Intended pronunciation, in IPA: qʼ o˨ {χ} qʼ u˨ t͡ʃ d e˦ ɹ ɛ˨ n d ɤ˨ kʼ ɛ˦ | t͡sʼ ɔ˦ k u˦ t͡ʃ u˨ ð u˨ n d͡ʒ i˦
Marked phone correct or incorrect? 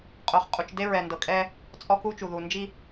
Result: correct